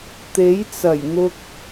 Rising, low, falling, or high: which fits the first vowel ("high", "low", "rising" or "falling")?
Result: rising